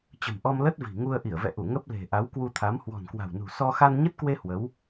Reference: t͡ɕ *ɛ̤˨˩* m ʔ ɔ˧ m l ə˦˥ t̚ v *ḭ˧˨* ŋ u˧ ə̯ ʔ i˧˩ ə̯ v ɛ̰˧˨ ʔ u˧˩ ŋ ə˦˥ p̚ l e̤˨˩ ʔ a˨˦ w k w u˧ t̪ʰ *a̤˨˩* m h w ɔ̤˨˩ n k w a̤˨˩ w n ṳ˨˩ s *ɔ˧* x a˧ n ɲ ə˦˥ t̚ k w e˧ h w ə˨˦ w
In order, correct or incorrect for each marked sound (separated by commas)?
incorrect, incorrect, incorrect, correct